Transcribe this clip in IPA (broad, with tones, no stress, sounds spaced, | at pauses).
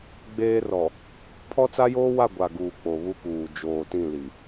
ɡ͡b eː˦ r ɔ˨ | pʰ ɔ˦ t͡s a˦ j oː˦ w a˦˨ ɡʷ a˨ ɡ uː˨ k͡p o˨ β u˦ k uː˨ d͡ʒ oː˨ t ĩ˦˨ l i˨